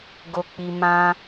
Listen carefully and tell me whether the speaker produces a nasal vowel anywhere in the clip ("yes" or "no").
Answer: yes